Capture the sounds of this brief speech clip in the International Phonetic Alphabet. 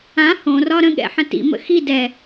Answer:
ã h õ r ɒ ɾ ə̃ ɠ ɛ̰ ħ ə̃ t ḭ m ə̰ x i d ɛ

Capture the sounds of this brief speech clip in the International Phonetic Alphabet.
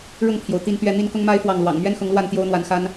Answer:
ɻ ʊ˥˨ ŋ pʰ j o˩ ʊ̯ t̪ i˥˨ n t̪ ɥ ɛ˥˨ n̪ i˥˨ n k ʊ˦ ŋ m a˦ ɪ̯ f w ɑ˥˨ ŋ l w ɑ̰˨˩ ŋ m ɥ ɛ˦ n x ʊ˨˦ ŋ l w a˥˨ n t̪ j o˦ ʊ̯ n̪ w a˨˦ n x a˦ n

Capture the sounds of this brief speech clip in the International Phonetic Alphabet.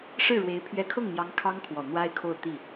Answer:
ʂ ɻ̩˥˩ ɻ w e˧˥ ɪ̯ pʰ ɥ ɛ˧˥ kʰ ɤ˥˩ ŋ n̪ j ɑ˧˥ ŋ kʰ ɑ˥ ŋ kʰ w ɔ˨˩ n̪ w a˥ ɪ̯ kʰ o˥˧ ʊ̯ t̪ i˥˩

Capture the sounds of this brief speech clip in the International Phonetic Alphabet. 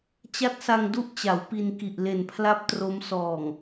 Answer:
t͡ɕ a˦˥ t̚ s a˧ ŋ d u˥˩ ʔ t͡ɕ a˩˦ w p i˧ n k i˨˩ ʔ l e˨˩ n pʰ l a˥˩ p̚ t r o˦˥ m s ɔː˨˩ ŋ

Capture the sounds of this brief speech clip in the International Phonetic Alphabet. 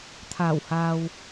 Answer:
t̪ʰ aː˨˩ w h aː˨ w

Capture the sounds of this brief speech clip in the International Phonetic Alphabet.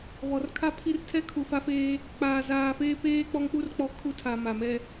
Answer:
β ɔ˨ r kʰ a˦ pʰ i˦ r tʰ ɛ˦ kʰ u˨ f a˦ f eː˦ | k͡p aː˨ z aː˨ f eː˦ p eː˦ k͡p ɔ˦ ŋ k͡p u˦ r k͡p ɔ˦ kʰ u˦ tʰ aː˨ m a˨ m ɛ˦

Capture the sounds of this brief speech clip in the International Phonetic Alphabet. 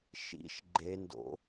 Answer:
ʃ ḭ ʃ ɡ͡ǃ e n d o̰

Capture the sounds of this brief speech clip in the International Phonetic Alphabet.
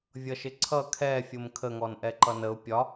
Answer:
vʲ ʌ ʃ ɪ ǀʰ ʌ kʰ ɛ fʲ ʊ m kʰ ə ŋ ɔ n ʔ ɛ ǃ ʌ n ə ʊ̯ pʲ ɒ

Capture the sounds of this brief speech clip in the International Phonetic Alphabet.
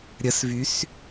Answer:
ɾʲ ə s v y s

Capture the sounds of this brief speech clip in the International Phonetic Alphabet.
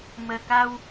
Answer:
m əː˨˩ k a˧ w

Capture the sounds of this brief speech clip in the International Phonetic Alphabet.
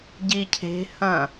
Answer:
ɟ i cʰ e̤ h ɐ̃

